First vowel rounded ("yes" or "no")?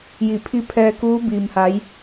no